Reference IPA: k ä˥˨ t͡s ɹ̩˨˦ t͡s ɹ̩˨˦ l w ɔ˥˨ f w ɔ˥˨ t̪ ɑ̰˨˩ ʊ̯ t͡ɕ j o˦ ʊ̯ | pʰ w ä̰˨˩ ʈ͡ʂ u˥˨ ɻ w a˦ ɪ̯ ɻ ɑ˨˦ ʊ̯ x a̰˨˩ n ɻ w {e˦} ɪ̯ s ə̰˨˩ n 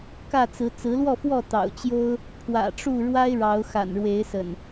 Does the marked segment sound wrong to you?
yes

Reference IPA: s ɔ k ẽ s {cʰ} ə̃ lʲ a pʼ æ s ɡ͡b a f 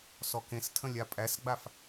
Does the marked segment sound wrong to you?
yes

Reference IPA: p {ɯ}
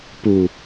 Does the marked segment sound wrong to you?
yes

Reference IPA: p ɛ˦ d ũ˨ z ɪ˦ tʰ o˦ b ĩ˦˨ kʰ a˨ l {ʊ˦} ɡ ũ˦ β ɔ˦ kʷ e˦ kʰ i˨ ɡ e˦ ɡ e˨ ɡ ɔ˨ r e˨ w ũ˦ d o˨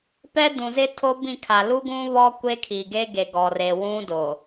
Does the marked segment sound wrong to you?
yes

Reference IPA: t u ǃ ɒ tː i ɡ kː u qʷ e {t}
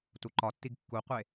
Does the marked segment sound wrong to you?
yes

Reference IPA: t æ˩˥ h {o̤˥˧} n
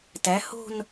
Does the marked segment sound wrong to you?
no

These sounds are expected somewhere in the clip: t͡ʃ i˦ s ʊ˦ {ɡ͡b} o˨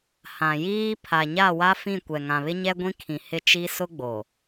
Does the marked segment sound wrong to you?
no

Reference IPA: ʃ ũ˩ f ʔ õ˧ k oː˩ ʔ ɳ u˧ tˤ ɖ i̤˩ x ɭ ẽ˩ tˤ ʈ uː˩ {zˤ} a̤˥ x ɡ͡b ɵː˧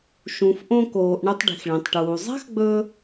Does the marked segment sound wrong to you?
no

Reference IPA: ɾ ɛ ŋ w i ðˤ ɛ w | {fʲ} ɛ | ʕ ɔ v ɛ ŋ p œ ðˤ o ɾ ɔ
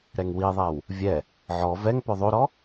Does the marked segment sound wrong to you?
yes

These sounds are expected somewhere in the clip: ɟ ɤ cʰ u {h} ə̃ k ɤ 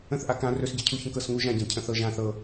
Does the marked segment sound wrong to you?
yes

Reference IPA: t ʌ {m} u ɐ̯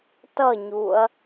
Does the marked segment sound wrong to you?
yes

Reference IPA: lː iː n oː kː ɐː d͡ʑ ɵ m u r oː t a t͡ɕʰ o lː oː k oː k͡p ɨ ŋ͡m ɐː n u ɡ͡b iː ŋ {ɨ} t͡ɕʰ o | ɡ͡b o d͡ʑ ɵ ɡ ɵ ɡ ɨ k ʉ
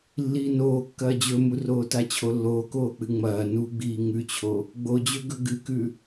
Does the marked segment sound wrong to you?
yes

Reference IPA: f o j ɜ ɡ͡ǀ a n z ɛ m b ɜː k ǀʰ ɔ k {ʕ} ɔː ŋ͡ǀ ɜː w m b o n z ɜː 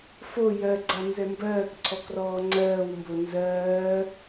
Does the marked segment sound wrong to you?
yes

